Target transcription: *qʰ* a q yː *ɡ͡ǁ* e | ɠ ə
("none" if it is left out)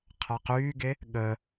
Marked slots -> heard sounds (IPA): qʰ, ɡ

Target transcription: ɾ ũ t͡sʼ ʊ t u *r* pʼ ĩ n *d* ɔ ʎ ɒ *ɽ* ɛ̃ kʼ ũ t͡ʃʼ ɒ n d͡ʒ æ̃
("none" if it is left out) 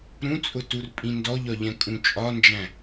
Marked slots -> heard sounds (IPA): r, d, ʎ

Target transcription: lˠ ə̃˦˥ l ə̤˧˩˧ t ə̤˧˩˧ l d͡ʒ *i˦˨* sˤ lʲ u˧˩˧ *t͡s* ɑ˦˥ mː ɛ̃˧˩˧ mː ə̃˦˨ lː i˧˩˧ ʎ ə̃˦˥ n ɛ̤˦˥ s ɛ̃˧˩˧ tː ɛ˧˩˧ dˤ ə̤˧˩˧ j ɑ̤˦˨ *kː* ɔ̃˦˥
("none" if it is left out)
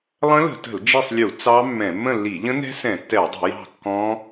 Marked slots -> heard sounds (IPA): i˦˨, t͡s, kː

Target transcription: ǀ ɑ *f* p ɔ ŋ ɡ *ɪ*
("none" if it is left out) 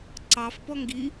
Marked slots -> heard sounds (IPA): f, i

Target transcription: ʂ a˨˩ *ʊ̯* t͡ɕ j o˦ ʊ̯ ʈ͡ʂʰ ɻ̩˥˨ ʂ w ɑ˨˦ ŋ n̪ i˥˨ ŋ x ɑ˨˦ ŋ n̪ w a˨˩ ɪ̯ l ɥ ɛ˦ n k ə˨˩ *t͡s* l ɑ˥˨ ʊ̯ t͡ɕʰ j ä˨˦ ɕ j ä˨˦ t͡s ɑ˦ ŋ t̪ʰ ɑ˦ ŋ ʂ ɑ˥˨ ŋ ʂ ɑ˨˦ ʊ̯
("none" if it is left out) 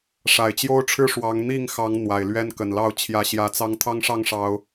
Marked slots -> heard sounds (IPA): ɪ̯, n

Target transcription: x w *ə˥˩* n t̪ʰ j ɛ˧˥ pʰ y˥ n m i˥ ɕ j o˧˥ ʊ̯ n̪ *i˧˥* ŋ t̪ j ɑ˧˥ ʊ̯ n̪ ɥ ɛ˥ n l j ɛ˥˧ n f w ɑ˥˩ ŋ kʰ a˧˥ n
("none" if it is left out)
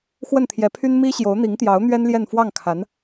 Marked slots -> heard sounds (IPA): ə˥˩, i˧˥

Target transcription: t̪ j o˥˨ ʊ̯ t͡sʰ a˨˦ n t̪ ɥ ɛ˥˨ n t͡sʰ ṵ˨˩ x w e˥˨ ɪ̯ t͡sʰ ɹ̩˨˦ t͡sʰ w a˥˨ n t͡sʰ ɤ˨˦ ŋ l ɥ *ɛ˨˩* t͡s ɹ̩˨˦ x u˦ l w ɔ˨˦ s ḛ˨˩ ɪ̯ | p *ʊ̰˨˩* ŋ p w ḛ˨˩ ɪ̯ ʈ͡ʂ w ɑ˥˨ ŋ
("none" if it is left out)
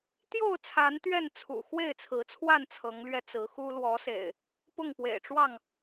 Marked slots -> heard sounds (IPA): ɛ˧, ʊ˥˨

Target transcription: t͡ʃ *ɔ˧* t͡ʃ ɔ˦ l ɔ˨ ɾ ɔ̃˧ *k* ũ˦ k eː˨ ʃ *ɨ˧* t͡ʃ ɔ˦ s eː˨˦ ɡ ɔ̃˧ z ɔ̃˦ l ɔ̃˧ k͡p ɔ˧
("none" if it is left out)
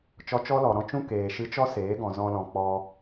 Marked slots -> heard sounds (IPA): ɔ˧, t͡ʃ, ɨ˧

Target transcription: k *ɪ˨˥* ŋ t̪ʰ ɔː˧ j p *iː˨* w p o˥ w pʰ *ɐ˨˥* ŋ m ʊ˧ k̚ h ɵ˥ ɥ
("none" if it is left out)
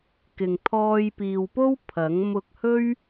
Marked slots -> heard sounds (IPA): ɪ˨, iː˨, ɐ˨˥

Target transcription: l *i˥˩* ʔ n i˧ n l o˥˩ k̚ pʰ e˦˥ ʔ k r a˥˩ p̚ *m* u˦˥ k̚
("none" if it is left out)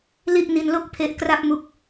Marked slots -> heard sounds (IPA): i˥˩, m

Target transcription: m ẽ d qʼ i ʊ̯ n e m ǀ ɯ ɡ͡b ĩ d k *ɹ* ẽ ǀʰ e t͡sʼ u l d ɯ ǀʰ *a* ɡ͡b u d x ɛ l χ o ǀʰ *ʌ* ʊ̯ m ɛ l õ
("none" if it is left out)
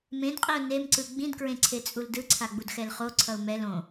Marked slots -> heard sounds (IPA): ɹ, a, ʌ

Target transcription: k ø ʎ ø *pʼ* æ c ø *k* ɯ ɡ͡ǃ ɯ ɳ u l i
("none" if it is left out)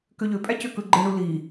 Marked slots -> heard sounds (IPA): pʼ, k

